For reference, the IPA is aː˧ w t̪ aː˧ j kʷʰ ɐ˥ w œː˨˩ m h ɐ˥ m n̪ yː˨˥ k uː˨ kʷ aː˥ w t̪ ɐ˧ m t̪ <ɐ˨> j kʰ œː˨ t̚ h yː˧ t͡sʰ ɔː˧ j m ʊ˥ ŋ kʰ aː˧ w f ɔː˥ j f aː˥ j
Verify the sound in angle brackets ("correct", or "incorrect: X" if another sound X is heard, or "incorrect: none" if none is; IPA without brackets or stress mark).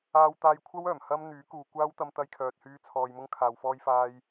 incorrect: ɐ˧